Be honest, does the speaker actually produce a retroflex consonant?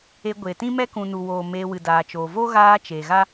no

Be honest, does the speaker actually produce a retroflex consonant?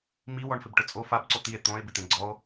yes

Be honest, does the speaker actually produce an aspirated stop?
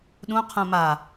yes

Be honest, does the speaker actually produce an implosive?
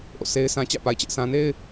no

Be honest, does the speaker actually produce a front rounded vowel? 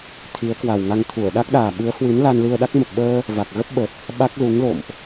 no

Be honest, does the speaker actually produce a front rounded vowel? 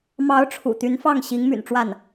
yes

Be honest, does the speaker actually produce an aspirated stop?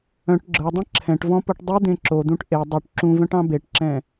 yes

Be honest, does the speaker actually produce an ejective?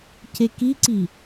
no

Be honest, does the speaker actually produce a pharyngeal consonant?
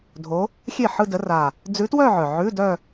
yes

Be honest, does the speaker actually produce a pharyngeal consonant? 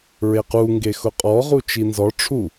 no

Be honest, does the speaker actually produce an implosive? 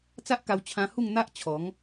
no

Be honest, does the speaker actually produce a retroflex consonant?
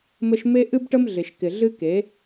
yes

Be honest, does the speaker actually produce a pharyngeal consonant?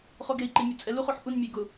yes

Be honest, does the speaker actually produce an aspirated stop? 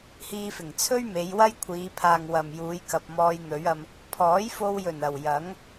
yes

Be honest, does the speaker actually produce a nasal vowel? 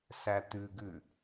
no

